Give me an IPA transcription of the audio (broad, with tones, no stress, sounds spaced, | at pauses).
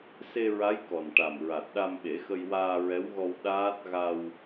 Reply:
s e˧ ɹ a˧˥ j k ɔ˨˩ n ʈ a˨˩ m ɹ a˨˩ t̚ ɗ a˧ m ɓ e˨˩˦ x ə˧ j w aː˧ ɹ ɛ˧˥ w ɣ ɔ˧ w ɗ aː˦˥ t̚ ɣ a˧ w